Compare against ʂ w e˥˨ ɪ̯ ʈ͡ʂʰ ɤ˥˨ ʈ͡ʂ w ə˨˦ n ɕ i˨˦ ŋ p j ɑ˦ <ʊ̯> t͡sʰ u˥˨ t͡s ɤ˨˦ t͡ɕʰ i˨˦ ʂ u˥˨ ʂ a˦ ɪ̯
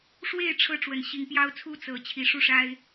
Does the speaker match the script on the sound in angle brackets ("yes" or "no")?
yes